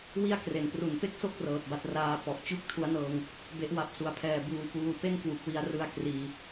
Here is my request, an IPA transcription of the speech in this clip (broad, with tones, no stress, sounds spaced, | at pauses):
w i˥˩ a̯ k r e˩˦ n p r u˨˩ n p e˥˩ k̚ s o˥˩ k̚ r ɤː˨˩ t̚ b a˦˥ t̚ r aː˧ p ɔ˨˩ ʔ t͡ɕ u˥˩ k̚ tʰ u˦˥ a̯ n ɤː˧ ŋ | b e˦˥ ʔ w a˦˥ p̚ s u˨˩ a̯ pʰ ɛː˨˩ b uː˧ p uː˧ p e˥˩ n k w u˨˩ k̚ w i˧ a̯ r ɯ˧ a̯ k r iː˨˩